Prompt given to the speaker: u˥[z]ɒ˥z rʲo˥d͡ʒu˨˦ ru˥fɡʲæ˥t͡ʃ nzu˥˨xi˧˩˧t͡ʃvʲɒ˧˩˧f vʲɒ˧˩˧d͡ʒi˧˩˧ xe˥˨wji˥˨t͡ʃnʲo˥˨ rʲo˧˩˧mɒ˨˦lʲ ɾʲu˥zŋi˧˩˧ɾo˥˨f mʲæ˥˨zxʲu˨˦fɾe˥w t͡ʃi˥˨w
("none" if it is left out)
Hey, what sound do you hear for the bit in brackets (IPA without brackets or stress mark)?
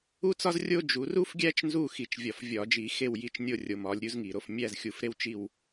t͡s